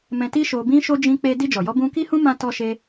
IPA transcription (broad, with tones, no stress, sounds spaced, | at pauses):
m ɛ̃˧ t i˦ ʃ o˧ b ĩ˦ ʃ o˦ d͡ʒ ĩ˧ k͡p e˧ d i˧ d͡ʒ ɔ˨ j ɔ˧ b ũ˧ k i˦ h ũ˦ m ã˦ t ɔ˦ ʃ e˦